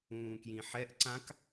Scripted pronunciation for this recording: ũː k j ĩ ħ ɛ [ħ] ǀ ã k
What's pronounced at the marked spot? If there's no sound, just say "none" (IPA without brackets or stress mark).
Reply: ʔ